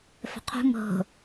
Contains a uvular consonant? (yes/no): yes